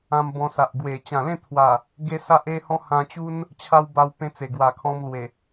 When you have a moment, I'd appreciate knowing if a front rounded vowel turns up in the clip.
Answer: no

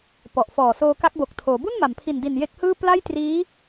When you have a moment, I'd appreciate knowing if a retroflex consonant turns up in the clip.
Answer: no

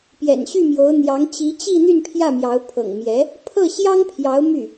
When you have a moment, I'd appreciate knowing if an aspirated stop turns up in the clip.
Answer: yes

